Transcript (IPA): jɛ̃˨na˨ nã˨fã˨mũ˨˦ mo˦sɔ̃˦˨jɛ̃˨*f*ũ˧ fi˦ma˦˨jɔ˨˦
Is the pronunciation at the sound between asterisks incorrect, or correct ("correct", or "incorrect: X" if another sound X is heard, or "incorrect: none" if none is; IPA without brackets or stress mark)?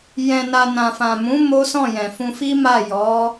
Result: correct